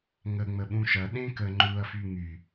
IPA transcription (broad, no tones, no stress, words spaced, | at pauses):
ŋə ŋ͡məɓũʃɐ ɗẽkə ŋ͡ǃuɐ̯fy ŋy